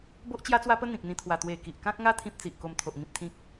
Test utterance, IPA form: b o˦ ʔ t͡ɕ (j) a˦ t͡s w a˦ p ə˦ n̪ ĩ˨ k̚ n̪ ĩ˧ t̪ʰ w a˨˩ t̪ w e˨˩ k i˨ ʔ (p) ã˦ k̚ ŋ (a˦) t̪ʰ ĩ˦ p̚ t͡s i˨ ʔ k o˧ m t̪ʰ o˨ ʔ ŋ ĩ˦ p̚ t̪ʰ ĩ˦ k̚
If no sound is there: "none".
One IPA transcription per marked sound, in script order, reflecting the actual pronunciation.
j, k, a˦

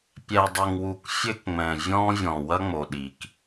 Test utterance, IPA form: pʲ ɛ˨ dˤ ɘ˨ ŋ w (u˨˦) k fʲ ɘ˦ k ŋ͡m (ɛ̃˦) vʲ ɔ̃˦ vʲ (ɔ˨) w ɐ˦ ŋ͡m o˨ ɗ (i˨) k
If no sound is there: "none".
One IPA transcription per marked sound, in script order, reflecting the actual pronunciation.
u˨, ɛ̃˨, ɔ̃˨, i˨

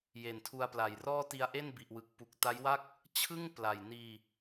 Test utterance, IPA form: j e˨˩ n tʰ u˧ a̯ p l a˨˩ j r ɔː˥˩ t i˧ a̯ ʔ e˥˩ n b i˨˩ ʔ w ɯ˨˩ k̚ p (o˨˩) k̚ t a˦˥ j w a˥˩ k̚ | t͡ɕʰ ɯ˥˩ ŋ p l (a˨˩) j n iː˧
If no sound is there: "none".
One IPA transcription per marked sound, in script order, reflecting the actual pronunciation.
u˨˩, a˨˩

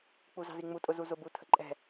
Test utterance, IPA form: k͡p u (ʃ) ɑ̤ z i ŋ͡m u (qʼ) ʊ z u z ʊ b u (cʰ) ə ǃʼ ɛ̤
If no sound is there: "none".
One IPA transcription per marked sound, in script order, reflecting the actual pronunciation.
z, tʼ, tʰ

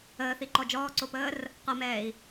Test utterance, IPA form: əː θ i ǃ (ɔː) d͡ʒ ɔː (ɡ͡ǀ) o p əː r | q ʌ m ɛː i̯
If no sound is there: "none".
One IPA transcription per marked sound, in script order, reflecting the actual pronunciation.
ɔ, ǀ

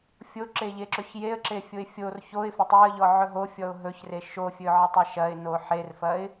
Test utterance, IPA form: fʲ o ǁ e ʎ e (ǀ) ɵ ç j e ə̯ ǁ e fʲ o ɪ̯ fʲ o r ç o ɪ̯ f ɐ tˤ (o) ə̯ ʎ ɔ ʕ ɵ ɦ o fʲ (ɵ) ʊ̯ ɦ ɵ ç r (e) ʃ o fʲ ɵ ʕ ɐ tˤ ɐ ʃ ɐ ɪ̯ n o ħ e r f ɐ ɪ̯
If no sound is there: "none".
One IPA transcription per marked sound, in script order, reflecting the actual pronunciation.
ǁ, ɵ, ɔ, e

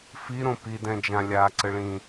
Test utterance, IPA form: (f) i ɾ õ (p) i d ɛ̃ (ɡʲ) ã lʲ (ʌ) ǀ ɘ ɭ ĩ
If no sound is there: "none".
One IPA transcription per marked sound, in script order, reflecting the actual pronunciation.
f, p, d͡ʒ, a

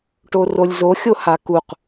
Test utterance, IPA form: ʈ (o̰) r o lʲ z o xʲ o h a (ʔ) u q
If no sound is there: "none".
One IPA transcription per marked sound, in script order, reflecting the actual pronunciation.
o, k

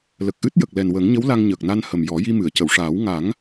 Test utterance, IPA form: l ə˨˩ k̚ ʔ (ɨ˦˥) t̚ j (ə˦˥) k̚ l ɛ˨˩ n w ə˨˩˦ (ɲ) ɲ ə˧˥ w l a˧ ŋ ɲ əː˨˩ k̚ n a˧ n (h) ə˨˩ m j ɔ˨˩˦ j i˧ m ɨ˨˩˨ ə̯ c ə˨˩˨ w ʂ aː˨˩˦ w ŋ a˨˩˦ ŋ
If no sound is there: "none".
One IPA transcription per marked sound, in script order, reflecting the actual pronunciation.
ɨ˦˥, ə˨˩, ŋ, h

